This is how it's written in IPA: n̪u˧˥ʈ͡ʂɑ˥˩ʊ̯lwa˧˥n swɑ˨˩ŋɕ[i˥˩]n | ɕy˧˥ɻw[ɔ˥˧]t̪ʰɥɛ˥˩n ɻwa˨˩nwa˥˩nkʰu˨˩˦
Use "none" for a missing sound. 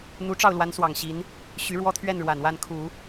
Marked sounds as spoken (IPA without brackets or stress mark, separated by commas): i˧˥, ɔ˥